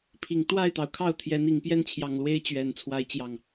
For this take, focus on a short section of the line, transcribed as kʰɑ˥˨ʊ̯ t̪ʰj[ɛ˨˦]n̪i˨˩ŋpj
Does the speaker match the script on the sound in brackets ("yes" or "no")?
yes